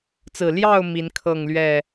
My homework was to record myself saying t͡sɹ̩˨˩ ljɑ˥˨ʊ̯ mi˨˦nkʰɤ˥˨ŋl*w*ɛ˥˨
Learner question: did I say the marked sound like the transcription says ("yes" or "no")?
no